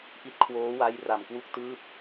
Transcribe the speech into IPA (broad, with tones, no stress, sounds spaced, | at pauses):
ʔ i˦˥ t̚ kʰ w oː˦˥ w a˦˥ j r a˨˩ m k w u˥˩ k̚ t ɯː˦˥ p̚